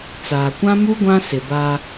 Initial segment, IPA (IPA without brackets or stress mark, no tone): t͡s